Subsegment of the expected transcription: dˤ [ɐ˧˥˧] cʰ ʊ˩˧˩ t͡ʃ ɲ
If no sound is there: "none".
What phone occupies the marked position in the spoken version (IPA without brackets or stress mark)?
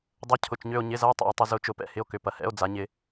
ɐ˧˥˧